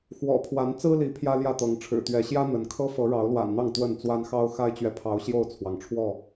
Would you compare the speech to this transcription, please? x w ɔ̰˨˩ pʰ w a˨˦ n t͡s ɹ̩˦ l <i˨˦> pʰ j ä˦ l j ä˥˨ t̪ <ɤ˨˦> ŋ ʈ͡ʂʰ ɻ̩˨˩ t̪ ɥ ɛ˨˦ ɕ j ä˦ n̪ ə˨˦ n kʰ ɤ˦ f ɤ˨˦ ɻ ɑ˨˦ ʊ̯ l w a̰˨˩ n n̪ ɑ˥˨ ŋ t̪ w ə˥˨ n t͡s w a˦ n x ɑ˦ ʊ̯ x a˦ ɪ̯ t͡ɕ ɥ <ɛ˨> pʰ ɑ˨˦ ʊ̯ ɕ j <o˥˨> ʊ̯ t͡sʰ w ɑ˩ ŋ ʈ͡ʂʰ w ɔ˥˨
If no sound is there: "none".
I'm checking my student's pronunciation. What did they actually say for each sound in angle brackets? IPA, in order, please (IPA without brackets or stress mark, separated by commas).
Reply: i˨˦, ɤ˨˦, ɛ˨, o˥˨